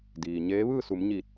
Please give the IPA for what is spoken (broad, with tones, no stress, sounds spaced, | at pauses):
d iː˩ ɲ eː˧˥ ʋ ɯː˥˨ s u˩˧ m ɲ iː˧˩ t̚